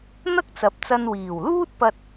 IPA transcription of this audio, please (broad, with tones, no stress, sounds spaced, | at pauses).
n̪ ɐ˥ k̚ t͡s ɐ˨˥ p̚ t͡s ɐ˧ n w iː˨˩ w l uː˥ t̚ p ɐ˧ t̚